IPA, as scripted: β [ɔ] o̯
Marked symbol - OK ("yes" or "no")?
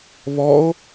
yes